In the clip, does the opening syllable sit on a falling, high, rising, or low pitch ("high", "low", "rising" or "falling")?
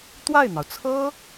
falling